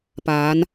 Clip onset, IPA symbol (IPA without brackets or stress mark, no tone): p